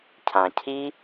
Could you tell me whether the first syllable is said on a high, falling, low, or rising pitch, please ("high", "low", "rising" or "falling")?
low